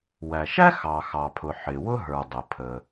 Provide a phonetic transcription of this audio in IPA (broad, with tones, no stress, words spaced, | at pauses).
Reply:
wæ˩ʃæ˥ xɑ˩xɑ˩pʰʊ˩ ħɪ˩wʊ˥ɦə˞˩ dˤə˩pʰə˩